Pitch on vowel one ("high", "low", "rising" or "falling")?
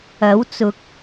rising